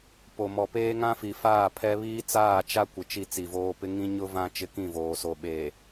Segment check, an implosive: present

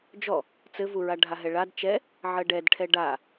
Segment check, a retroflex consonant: present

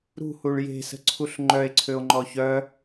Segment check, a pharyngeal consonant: absent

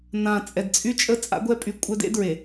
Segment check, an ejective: present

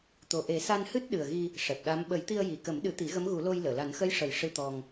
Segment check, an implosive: present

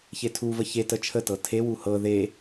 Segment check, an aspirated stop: present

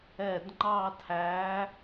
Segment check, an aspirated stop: present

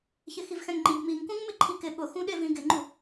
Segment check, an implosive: present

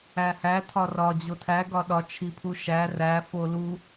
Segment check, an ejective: absent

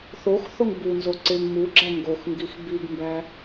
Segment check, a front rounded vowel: absent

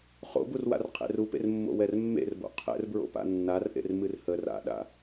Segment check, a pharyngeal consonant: absent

